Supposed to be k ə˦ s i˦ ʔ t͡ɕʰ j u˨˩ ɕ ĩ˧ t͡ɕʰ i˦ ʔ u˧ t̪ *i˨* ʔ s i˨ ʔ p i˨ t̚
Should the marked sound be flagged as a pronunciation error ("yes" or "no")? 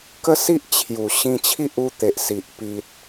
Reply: yes